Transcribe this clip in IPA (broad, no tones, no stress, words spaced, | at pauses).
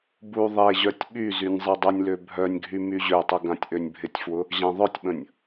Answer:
bu ðˤeʑœtʲ ɓyzynʲ zˤedˤənʲlø bʱœnʲɡʱy myʑøtˤə ɡãtʲʔønʲbʱɪtʲfwʊ | ʑãðˤœtʲɓə̃nʲ